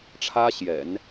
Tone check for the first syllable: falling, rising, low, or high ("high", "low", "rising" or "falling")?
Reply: high